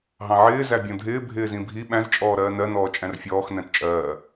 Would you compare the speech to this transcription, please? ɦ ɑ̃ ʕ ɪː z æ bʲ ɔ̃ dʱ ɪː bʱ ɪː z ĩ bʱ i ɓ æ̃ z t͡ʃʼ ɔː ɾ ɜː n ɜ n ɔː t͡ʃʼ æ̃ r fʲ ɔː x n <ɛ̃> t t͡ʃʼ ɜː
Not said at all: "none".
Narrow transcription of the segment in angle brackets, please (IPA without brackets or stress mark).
æ̃